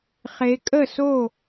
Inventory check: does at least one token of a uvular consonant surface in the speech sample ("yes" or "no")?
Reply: yes